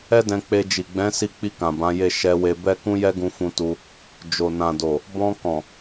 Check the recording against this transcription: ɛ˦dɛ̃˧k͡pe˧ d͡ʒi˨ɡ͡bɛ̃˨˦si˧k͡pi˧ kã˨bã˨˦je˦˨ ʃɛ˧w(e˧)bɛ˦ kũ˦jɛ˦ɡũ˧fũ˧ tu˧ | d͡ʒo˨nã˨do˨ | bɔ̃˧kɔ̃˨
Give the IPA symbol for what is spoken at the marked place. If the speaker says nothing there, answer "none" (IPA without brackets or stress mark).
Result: e˧